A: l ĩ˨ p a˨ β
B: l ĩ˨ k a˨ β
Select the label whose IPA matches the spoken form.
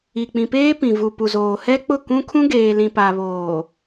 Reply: A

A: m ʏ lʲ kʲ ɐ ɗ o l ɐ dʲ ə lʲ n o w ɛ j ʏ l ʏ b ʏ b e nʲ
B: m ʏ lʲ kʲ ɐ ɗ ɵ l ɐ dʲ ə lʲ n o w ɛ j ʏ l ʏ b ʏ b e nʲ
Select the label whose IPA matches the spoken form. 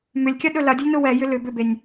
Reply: B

